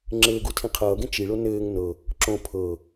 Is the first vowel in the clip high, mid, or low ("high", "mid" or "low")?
mid